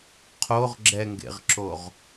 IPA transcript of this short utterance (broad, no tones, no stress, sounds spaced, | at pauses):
qʰ o ʁ ɡ͡ǁ ɛ ŋ ɡ ḛ ʁ ǁ o ʁ